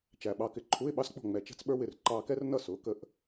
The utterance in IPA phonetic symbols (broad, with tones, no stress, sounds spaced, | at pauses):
t͡ʃ æ˨˩ ɓ ɑ˧ k ɪ˧ ǃʰ u˧˥˧ ɪ̯ ɓ ɑ˥ s k͡p ɔ̤˥˩ ŋ͡m ɛ˨˩ t͡ʃ ɛ̤˥ t͡s ɓ ə˞˥ w ɪ˥˩ r ǃ ɑː˧ k ɛ˥ r n ʌ˥˩ s ʊː˩˥ k ə˧ ʔ